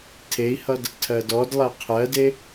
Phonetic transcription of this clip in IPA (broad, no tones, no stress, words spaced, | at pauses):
tʰei̯hʌd | tʰɜdɔdlˠɜ qʰɜde